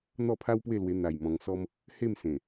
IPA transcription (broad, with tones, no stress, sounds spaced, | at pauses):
n̪ ɔ˥˧ pʰ a˦ w p w e˥˧ l w e˧ n̪ a˨˩ j m ɔ̃˧ ŋ s ɔ˧ m | h e˥˧ m s ẽ˨˩